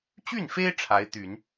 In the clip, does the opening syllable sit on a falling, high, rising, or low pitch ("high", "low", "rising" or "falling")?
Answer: falling